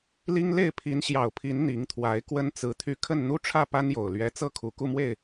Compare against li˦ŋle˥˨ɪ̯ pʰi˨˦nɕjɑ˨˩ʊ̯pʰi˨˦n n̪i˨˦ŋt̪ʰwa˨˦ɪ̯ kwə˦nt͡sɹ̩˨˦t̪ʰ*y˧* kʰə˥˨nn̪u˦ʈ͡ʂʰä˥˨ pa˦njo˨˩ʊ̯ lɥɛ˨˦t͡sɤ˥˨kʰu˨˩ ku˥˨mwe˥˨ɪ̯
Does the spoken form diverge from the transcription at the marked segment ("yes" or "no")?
no